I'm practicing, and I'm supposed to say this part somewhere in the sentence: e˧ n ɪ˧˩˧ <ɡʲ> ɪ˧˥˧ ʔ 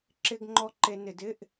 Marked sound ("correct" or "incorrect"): incorrect